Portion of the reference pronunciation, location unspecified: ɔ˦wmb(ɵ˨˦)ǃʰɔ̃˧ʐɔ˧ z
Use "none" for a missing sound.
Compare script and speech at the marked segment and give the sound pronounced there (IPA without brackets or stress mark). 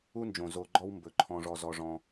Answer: ɵ˨˦